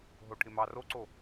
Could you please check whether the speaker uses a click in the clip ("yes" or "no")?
yes